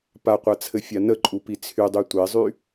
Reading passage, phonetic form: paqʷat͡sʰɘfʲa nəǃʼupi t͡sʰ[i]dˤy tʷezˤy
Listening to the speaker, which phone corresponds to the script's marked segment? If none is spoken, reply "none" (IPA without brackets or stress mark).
y